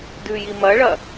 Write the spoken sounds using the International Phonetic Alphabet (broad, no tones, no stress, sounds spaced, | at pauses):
d ʉ j i m ɐ ɭ ɐ